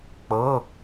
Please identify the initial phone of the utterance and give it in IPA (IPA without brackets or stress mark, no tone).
k͡p